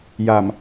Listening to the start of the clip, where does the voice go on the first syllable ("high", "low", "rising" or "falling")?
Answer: low